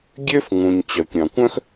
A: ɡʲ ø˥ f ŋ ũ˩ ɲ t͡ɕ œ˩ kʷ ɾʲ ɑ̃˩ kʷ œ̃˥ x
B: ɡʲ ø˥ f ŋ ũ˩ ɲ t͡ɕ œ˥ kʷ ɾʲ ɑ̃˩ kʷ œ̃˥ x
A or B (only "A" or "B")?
A